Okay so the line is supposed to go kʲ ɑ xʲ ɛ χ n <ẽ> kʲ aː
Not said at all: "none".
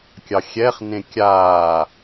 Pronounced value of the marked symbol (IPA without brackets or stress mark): ẽ